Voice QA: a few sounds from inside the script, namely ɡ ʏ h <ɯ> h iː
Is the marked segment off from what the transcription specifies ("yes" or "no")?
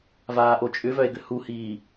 yes